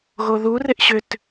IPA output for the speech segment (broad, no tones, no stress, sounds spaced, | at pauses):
ɣ o ð u r ɪ ʔ ɕ ʏ t